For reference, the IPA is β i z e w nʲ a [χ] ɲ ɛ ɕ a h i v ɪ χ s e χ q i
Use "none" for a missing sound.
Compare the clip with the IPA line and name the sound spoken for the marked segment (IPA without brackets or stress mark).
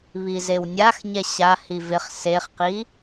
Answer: x